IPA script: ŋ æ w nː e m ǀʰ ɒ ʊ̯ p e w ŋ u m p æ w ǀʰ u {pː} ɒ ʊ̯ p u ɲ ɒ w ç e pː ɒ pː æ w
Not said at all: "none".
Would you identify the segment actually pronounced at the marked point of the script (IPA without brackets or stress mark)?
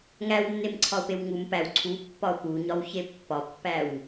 pː